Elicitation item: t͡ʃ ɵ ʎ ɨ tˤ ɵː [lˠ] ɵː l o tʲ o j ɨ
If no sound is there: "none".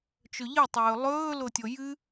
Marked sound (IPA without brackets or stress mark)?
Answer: lˠ